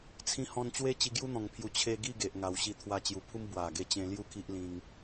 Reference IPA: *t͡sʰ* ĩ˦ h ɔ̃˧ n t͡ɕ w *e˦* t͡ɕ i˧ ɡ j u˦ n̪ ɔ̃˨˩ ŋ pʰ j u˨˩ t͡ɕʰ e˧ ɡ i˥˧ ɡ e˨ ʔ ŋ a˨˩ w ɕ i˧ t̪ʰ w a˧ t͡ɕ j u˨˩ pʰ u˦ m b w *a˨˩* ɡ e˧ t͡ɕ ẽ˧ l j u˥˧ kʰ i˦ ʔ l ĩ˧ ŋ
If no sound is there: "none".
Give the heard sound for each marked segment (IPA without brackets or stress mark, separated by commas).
t͡sʰ, e˦, a˨˩